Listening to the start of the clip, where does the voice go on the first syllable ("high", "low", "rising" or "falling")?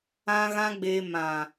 high